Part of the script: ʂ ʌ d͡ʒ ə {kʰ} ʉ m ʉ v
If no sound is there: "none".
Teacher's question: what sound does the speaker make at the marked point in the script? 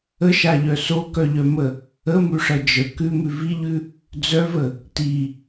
k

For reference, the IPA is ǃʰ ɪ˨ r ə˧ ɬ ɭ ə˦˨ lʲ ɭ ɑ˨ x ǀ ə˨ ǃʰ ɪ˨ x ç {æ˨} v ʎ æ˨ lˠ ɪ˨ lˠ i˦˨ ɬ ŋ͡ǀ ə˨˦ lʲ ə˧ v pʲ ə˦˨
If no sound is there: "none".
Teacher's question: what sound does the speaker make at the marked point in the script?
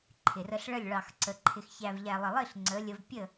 æ˨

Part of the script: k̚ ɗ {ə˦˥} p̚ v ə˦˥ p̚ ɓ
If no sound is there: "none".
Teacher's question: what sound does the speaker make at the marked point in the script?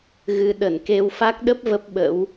ə˦˥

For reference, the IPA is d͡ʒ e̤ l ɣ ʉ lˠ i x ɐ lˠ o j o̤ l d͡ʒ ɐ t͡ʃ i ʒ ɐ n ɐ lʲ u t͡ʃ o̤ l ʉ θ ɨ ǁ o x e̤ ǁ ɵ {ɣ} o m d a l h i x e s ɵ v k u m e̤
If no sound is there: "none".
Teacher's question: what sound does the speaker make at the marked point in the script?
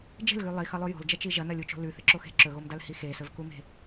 ɣ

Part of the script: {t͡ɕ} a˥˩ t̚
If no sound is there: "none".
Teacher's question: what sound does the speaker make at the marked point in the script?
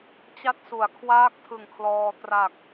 t͡ɕ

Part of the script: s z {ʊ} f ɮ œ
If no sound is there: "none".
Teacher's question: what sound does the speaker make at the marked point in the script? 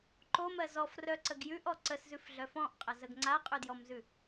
ʉ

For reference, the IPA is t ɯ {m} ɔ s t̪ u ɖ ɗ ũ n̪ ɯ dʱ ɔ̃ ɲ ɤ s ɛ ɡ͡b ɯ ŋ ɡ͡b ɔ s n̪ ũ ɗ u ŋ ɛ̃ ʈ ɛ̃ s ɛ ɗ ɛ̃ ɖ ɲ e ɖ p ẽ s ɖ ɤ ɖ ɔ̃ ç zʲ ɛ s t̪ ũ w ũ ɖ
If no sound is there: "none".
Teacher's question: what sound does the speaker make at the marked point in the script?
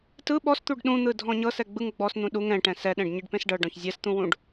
ɓ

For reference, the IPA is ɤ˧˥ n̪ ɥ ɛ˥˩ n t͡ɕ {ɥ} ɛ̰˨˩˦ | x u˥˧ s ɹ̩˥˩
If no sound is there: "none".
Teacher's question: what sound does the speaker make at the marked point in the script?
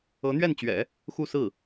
ɥ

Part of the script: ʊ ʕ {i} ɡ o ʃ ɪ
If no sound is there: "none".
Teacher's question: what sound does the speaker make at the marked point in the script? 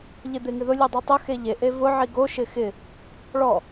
i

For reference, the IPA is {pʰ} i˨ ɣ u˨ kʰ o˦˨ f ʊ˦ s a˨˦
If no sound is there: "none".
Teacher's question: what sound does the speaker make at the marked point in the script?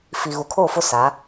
f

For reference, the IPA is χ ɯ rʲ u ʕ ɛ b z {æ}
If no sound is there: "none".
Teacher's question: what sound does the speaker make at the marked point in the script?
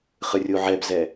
ɛ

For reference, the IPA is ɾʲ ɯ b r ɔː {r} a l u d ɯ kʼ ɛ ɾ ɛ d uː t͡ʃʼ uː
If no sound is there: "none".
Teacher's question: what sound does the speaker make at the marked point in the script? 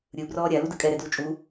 ɾʲ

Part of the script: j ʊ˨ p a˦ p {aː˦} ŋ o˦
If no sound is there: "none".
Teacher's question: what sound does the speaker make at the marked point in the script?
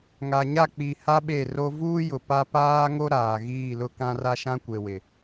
aː˦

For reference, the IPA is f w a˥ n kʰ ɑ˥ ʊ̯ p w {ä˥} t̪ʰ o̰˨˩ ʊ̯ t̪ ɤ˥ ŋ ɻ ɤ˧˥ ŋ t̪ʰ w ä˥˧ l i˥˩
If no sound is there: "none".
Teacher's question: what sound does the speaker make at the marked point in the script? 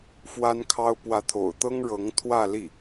ä˧˥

